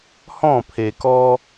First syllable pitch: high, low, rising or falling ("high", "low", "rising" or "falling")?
falling